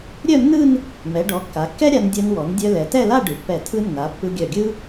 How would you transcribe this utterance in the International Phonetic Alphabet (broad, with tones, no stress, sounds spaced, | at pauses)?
ɾʲ œ˥˧ nː ɯ˥˧ n | m ɛ˩˧ ɖ ɔ˩˧ kː a˩˧ kː ɛ˥ ɾʲ a˧ n dʲ œ˧ n w ɔ˩˧ n dʲ œ˧ l ɛ˩˧ t ɛ˥˧ l a˥˧ ɖ ɯ˩˧ pː ɛ˧˩ tʰ ɯ˧ nː a˩˧ pː ɯ˧ ɡʲ œ˧˩ ɡʲ ɯ˥